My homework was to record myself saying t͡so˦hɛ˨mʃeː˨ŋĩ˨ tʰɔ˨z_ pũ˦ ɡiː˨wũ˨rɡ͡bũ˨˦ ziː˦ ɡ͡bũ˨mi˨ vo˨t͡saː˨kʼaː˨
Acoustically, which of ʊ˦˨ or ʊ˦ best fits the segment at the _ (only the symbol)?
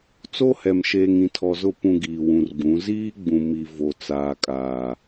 ʊ˦˨